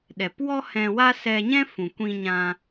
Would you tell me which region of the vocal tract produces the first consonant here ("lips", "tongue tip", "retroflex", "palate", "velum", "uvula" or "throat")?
tongue tip